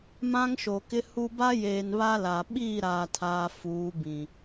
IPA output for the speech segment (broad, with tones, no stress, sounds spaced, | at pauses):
m ã˦ ŋ ʃ o˨ k ɪ˦ h u˦ b a˦ j eː˨ n β a˦ l a˨ ɓ iː˦˨ ɾ aː˨ tʰ aː˨ f uː˨˦ b ĩ˨